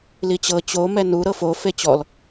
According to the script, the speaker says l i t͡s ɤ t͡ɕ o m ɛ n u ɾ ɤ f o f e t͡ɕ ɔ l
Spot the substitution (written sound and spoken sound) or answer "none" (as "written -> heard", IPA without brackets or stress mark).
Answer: t͡s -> t͡ɕ